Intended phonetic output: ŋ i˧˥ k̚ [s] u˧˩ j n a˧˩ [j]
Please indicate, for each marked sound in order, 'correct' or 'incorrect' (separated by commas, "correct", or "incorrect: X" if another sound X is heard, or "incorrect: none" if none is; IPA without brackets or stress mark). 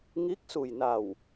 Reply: correct, incorrect: w